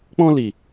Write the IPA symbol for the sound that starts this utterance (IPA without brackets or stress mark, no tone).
k͡p